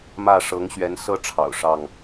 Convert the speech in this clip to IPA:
m ä˥˨ ʂ ɤ˨˦ ŋ ɕ ɥ ɛ˨˦ n s ɤ˦ ʈ͡ʂʰ ɑ̰˨˩ ʊ̯ ʂ ɑ˥˨ ŋ

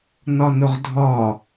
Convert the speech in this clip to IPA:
n ɒ n ʊ ʁ dʱ ɒ

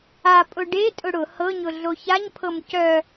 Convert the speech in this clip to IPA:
a pʼ ʊ ɖ e tʼ ʊ ɽ ʊ h ɤ ɲ ʊ ɮ o ç a ɲ pʰ ɤ m c œ

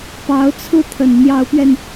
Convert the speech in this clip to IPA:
p ɑ˧˥ ʊ̯ t͡sʰ ɹ̩˥ t̪ʰ ə˨˩ n n̪ j ɑ˧˥ ʊ̯ p ɥ ɛ˧ n

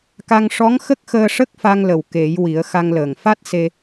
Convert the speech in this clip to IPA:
k a˧ ŋ ʂ ɔ˧˥ ŋ x ə˦˥ k̚ x əː˧ ʂ ə˦˥ k̚ f a˧ ŋ l ə˨˩ w k e˨˩˦ j w i˨˩˦ ə̯ x a˧ ŋ l əː˨˩ ŋ f a˦˥ t̚ s e˧

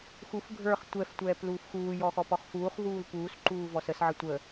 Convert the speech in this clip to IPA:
x u f ɡʱ ə˞ χ tʷ ɛ f tʷ ɛː p l uː f x uː j ɔ x ɔ p ɔ χ f uː χ v uː l p uː s ǃ uː v ɔ s ə s ʕ ə tʷ ə

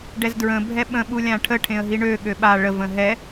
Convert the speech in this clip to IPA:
ɖ ɛ z d ɹ ə̃ bʱ ɛ ɓ ə̃ ɓ u lʲ ã ʈʰ ə ʈʰ ẽ ə̯ ɦ i ɳ ø ɠ ø ɓ a ɭ ə v ə̃ ɦ ɛ

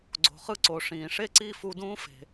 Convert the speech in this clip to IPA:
ɡ͡ǀ o̤˩ χ ɯ˥ ǀ o˩ ʂ ĩː˩ ʂ e˥˩ ǀ i˥˩ f u˧ d ũː˥ f e̤˩

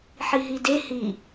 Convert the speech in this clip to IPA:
ħ i ɦ i d e h i

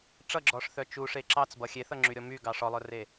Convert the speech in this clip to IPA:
ʈ͡ʂ ʌ ɡ͡ǁ ɔ ʂ θ œ t͡ʃ u ʂ e ǁ ɑ t͡s b ʌ xʲ e θ ʌ ŋ͡ǁ y ɾʲ ɔ m y ɡ ɑ ʂ ɔ lˠ œ r e

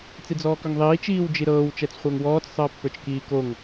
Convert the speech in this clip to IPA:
t͡s i d͡z ɔː k œ ŋ ðˤ iː t͡ʃ iː w d͡ʒ i ɾ ɤː w t͡ʃ ɛ t͡s χʷ əː ŋ w ɔː t͡s sˤ əː pː ə˞ t͡ʃ k iː k o ŋ

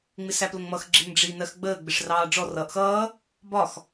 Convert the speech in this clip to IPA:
ŋ͡m ɪ s æ p l ə ŋ m ʌ x ɡ͡ǁ ɪ ŋ ɖ͡ʐ i n ɜ x ɡ͡b əː ɡ͡b ɪ ʂ r ɑː ɖ͡ʐ ɔ r ʌː ʔ x ʌː | b ɒ x

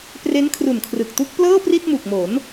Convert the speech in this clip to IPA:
p r e˦˥ n kʰ r u˨˩ n kʰ r ɯ˨˩ k̚ t u˦˥ k̚ p l ɤː˥˩ p r i˥˩ t̚ m u˨˩ k̚ m o˩˦ n

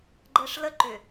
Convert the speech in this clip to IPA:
ɡ͡ǃ ɛ ʂ l ə ǃ ʏ

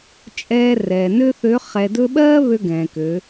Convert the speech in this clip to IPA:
t͡ʃʼ ɛː˧ r ɛː˩ n ø˥ θ ø˧˥ χ ɛ˧ d ɵ˥ ɓ ɜː˥ β ø˧ ɡ ɛ̃ː˩ k ø˩˧

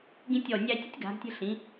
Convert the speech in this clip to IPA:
ɡ ĩ˧ tʲ ɔ˧˩ nʲ æ˧ tʲ ə˥ tʲ ɡ a̤˩˧ ɡ tʲ ə̤˧ ɬ ĩ˩˧

